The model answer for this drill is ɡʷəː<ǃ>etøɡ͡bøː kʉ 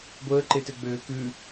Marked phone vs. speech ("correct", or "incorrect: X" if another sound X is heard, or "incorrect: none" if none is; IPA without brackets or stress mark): correct